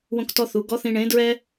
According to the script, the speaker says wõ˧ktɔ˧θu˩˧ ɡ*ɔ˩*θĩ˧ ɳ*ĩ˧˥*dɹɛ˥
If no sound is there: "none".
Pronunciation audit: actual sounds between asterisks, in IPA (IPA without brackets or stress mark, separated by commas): ɔ˧˥, ẽ˧˥